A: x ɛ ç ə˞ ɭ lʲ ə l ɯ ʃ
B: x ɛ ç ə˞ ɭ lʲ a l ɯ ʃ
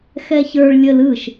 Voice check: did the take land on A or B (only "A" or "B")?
A